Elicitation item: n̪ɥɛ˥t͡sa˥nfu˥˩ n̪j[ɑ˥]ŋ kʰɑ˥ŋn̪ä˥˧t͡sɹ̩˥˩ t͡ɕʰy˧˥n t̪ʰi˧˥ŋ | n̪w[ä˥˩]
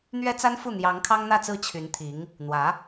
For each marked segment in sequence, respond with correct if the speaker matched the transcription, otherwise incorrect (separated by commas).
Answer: incorrect, incorrect